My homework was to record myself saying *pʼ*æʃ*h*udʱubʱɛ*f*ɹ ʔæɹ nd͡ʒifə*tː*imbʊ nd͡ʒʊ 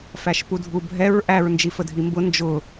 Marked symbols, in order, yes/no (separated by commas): no, no, no, no